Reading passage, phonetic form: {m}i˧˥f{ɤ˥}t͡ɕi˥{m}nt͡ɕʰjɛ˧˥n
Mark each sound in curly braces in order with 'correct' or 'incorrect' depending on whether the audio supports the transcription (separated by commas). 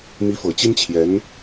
correct, incorrect, incorrect